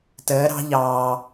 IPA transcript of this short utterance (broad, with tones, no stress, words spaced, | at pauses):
təː˩˧ɾɑ̤˧ʎɑː˩